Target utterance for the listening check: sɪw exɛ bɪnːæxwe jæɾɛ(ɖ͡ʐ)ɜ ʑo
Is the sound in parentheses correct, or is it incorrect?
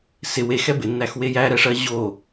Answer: incorrect